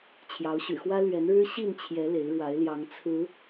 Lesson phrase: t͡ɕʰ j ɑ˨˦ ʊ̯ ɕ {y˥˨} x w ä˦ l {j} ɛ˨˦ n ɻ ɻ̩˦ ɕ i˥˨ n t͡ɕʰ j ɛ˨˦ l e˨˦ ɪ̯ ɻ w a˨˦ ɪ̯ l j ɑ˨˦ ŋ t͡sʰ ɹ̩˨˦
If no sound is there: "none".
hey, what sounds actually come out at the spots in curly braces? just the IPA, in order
y̰˨˩, ɥ

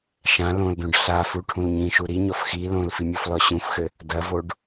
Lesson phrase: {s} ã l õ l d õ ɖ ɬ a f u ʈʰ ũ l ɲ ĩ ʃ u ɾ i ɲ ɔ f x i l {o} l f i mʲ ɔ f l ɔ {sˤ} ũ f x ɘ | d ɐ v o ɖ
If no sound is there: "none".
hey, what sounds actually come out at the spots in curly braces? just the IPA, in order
ʃ, õ, ɕ

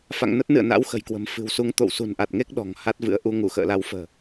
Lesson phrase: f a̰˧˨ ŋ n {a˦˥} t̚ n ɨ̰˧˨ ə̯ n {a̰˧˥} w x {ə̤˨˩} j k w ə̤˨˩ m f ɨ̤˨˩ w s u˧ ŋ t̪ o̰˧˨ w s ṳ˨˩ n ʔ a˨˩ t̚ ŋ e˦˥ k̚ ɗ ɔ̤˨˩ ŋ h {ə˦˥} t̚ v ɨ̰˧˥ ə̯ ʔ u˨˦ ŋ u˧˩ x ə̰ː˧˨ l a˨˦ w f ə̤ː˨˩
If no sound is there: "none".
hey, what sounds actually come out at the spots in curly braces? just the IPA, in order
ə˦˥, a̰˧˥, ə̤˨˩, a˦˥

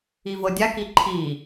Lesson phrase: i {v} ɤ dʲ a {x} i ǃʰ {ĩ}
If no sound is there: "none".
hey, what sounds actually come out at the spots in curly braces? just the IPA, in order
v, k, i

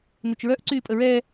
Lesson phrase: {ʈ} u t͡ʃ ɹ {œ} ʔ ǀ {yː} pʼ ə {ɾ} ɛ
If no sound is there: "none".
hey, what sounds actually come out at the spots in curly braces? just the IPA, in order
n, œ, yː, ɹ

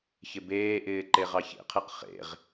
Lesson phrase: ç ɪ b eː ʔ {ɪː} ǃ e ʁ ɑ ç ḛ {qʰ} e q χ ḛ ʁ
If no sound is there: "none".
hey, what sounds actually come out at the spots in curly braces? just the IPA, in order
ɪː, qʰ

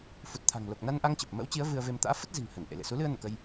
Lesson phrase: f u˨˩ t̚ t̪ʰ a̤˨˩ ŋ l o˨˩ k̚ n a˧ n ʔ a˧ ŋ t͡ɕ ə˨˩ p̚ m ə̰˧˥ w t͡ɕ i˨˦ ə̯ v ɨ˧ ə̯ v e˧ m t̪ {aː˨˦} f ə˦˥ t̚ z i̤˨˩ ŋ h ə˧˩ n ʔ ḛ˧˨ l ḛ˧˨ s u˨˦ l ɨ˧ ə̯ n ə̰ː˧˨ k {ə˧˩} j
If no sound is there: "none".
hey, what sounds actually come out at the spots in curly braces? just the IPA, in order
a̰ː˧˥, ə˧

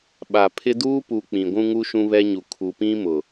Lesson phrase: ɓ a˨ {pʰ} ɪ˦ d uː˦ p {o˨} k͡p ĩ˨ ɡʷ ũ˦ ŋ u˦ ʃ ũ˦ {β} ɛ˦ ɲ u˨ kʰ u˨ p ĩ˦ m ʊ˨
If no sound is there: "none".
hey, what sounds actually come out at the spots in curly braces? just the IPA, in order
pʰ, u˨, β

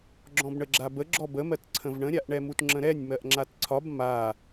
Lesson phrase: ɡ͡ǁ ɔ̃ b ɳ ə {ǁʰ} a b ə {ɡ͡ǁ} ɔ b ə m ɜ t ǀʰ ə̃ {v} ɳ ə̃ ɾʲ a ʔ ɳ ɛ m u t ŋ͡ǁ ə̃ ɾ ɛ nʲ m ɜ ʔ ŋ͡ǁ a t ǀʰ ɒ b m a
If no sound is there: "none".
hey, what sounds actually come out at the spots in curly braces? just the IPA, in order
ɡ͡ǁ, ɡ͡ǁ, v

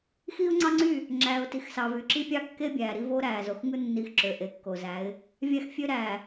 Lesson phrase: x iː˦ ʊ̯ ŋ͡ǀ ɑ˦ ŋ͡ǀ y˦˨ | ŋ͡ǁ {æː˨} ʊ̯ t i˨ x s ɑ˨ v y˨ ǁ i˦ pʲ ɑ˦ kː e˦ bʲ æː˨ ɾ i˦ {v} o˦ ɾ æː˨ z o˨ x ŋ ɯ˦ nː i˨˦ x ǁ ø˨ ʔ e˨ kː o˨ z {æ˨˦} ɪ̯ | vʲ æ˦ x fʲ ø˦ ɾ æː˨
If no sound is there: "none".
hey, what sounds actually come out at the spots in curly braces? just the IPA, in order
æː˨, v, æ˨˦

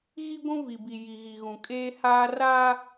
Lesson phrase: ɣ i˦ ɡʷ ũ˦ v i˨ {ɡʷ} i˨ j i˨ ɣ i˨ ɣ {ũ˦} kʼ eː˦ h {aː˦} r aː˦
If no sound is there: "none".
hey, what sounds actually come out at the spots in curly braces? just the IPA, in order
b, ũ˨, aː˦

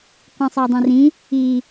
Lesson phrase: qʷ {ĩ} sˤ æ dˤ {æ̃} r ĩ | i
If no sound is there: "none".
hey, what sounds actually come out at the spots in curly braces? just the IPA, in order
ĩ, æ̃

